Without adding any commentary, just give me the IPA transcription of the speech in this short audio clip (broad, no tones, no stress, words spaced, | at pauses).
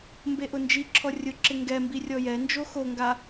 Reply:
mbeʔʊnd͡ʒiǁʰɔ rʲʊǁɪ ŋɡɛ mbirʲɔjɛnd͡ʒo xoŋɡa